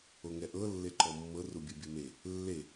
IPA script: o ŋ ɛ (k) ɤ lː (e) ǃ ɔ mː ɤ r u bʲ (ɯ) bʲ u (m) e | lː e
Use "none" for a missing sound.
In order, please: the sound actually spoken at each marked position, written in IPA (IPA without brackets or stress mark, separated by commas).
ʔ, e, ɯ, m